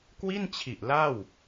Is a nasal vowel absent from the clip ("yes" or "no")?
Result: yes